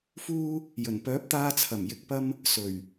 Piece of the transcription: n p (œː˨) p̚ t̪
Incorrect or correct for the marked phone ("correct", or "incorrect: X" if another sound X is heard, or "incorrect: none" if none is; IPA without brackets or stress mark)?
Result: incorrect: œː˨˥